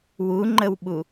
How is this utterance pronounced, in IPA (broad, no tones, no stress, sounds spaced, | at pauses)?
w u ŋ͡ǃ ə w ɓ u